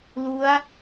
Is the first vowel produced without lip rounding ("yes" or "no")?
no